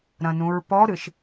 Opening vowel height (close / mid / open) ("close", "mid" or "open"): open